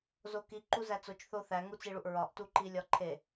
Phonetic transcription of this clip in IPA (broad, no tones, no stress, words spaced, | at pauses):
zoki ǃuzæt͡sot͡ʃ θoθæ ŋut͡siɭuʔɹɒʔ tuǃilʲɒǃʰe